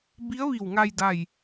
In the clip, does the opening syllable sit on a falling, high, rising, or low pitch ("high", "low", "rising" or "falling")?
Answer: rising